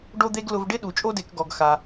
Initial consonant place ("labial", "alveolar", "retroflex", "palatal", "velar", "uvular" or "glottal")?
retroflex